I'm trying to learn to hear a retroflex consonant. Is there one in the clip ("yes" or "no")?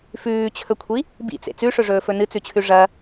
yes